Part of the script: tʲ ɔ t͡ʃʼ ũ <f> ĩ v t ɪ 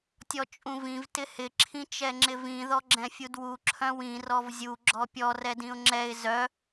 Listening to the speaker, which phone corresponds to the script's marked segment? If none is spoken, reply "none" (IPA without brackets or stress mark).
v